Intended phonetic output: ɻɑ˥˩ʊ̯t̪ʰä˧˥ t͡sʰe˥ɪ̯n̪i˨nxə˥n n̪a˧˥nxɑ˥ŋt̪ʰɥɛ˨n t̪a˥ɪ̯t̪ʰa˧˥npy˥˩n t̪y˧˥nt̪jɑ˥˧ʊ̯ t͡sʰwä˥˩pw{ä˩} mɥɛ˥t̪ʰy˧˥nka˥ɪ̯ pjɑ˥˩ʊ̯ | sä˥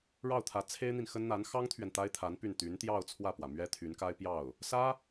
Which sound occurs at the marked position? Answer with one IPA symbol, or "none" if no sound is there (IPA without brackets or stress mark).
ä˩